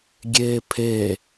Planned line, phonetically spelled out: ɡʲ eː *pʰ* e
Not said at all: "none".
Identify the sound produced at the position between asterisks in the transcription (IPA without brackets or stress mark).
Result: pʰ